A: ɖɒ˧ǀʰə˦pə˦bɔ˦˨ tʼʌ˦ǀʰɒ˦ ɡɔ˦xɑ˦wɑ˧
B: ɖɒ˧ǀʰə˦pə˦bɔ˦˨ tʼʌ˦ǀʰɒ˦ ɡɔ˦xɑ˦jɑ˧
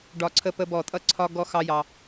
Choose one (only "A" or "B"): B